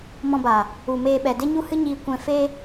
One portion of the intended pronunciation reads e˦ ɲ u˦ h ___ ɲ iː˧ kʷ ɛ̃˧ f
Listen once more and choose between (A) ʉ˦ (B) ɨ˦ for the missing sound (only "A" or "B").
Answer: B